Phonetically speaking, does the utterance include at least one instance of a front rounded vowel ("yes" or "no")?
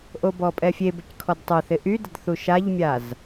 yes